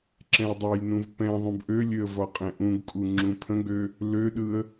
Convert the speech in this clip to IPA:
ǁ ɛ̃ ə̯ dˤ ɛ j n ũ v p ɛ̃ ðˤ ũ b ʔ ø lʲ ø ə̯ v ɒ qʼ ɛ̃ ʔ ũ ɡ kʼ u ŋ͡ǁ ũ pʰ ə̃ ɡ͡b ø | l ø ɗ ɯ ə̯

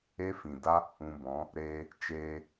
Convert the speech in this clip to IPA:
e˦ f ĩ˨ d a˦ | ũ˧ b ɔ̃˨˦ | ɾ eː˧ | t͡ʃ eː˧

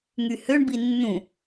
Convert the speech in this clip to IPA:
ŋ y h ø ɳ b i nː ũ

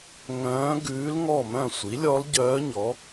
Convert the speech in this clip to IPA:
ŋ œ̃ː˧˥ ɡ ʉː˧˥ l ŋ ɔ˥˨ m œ̃˥˨ sʷ i˩˥ lʲ ɔ˧˥ l ɟ œː˧˥ ɲ ɔ˩˥

